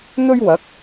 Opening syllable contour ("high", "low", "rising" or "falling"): high